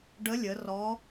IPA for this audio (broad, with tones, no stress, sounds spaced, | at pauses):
ɖ ə˧˥ lʲ ə˩˧ r ɔ˧˥